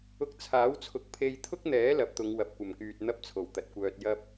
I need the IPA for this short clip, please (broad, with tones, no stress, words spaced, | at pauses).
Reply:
ʊ˧k̚t͡sʰaː˨˥wt͡sʰʊ˨˥k̚ pʰe˧jt̪ʰʊ˥k̚n̪ɛː˨˥ lɐ˨˥p̚t̪ʊ˨˧ŋ wɐ˨p̚kʷɐ˨˩mkyː˨t̚ n̪ɐ˥p̚t͡sʰo˨˩wt̪ɐ˨t̚kʷœː˧t̚ jɐ˥p̚